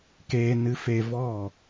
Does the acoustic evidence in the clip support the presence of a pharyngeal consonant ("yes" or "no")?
no